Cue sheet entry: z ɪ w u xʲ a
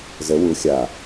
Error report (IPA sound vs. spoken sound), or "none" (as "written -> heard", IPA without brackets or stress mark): ɪ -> ə